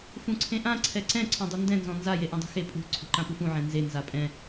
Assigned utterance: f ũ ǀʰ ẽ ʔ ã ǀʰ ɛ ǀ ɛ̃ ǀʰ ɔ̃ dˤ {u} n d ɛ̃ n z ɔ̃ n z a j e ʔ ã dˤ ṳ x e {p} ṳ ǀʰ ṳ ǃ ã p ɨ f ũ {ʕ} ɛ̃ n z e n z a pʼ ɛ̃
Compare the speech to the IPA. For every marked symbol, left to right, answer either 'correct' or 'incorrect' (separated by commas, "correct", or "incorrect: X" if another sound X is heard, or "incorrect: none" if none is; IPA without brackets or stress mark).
correct, incorrect: pʼ, correct